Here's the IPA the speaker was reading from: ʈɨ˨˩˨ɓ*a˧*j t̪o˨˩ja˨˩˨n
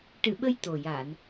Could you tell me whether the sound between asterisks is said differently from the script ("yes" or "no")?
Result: yes